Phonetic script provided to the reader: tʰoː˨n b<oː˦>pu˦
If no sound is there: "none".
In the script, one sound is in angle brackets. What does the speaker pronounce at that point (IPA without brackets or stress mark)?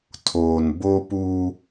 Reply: o˦